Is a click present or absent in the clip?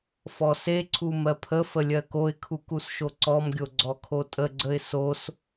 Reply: present